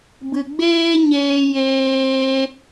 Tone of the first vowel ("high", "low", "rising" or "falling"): low